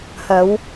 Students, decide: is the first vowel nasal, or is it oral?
oral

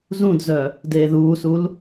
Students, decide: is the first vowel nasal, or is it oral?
nasal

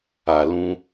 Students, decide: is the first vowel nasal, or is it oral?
oral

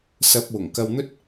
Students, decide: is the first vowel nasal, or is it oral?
oral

